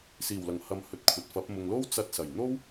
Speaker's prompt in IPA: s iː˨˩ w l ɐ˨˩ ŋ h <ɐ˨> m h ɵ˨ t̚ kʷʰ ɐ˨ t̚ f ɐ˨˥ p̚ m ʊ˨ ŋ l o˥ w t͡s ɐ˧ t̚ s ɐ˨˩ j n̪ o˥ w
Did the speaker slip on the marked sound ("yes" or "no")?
no